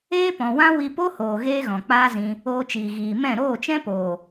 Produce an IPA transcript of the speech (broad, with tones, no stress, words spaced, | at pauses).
eː˦pɔ̃˨wã˦wi˧ po˦hoː˨ ɣeː˦ɣɔ̃˨k͡paː˦zĩ˧ | oː˧t͡ʃiː˨ ɣiː˨ mɛ̃˦˨ ɾoː˦˨t͡ʃɛ̃˦poː˨